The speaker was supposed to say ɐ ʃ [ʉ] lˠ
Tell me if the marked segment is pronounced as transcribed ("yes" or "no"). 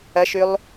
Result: yes